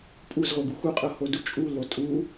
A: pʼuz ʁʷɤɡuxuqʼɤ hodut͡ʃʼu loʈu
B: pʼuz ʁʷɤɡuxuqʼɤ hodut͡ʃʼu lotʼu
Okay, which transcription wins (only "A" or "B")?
B